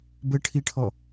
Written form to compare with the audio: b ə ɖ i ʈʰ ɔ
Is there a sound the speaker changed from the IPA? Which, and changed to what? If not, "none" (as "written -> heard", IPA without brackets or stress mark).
ɖ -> ʈʰ